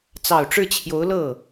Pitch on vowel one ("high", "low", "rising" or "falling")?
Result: low